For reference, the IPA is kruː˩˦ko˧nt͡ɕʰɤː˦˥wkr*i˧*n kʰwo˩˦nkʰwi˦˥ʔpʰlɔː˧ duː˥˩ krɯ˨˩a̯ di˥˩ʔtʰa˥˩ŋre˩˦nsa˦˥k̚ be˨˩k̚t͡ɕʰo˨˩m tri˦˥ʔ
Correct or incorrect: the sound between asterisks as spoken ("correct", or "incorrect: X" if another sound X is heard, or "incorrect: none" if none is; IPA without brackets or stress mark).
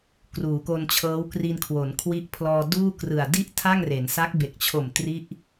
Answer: correct